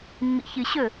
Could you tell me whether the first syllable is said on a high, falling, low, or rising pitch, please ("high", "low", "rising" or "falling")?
low